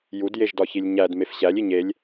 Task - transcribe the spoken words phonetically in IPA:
j u d j e ʒ d ɒ ç i lʲ ɲ æ d m e f ɕ æ lʲ i ɲ e lʲ

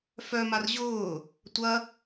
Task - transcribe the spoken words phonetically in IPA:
f œ m a r ʑ ʊː | tʷ ɐ

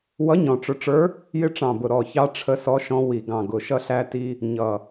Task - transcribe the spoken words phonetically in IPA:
w ʌ˧˥ ɲ ɔ̃˨˩ ʈ͡ʂ ʊ˧ ʈ͡ʂ ə˞˧˥ | j ɪ˧ ʈ͡ʂ ɑ̃˨˩ b ʊ˨˩ ɾ ɔ˨˩ ç ɑ˧ ʈ͡ʂʰ ə˧ s ɔ˧ ʃ ɔ̃˧ w i˨˩ ɡ ɑ̃˨˩ ɡ ʊ˨˩ ʃ ʌ˧ ɬ æ˧ t i˧ | ɲ ʌ˨˩

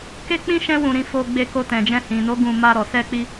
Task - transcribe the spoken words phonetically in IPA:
k e˦ k͡p ĩ˦ ʃ ɛ̃˦ w ũ˧ ɾ ĩ˧ f o˧ ɡ͡b e˧ k o˧ t ɛ̃˨ d͡ʒ ɛ̃˧ h ĩ˨ n o˨˦ ɡ ũ˧ m a˧ ɾ ɔ˨ s ɛ˧ k͡p i˧

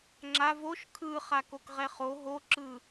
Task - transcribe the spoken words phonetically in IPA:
ŋ͡ǁ a v o ʃ kʰ ɯ χ a k o k ʁ ɛ χ o ɦ o ǁ ɯ

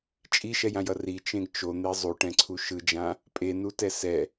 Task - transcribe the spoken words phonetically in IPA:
t͡ʃʼ i ʃ ɛ j ã j ʌ r i t͡ʃ ẽ ɡ t͡ʃ o n̪ e zˤ u ʈ ɛ̃ ǀʰ u ʃ ɯ d͡ʒ ã | pʼ e n u t ɛ s ɛ

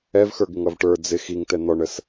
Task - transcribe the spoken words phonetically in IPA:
ɛ v x ə˞ ɡ ɪ ŋ ʌ v ʈ ə˞ d͡z ɪ x i ŋ t ɛ n̪ ɔ ɳ ə s

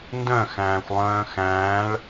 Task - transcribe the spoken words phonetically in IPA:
n d œ̃ x æ̃ː xʷ lˠ œ̃ː x æ̃ː ɭ

